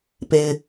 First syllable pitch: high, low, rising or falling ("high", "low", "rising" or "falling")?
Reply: low